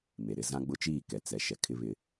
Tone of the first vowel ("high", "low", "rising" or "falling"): low